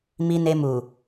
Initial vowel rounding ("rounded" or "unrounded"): unrounded